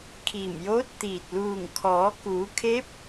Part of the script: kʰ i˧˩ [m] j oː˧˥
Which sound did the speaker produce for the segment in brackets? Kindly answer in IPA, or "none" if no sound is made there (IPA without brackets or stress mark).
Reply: m